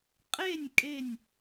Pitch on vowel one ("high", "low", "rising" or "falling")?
falling